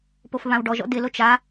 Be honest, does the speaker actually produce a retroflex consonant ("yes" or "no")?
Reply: yes